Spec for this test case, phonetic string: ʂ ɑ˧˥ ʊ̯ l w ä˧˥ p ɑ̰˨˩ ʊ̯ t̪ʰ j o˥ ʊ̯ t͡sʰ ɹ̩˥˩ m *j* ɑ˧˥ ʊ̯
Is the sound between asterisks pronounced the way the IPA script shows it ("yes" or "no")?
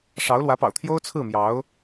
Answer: yes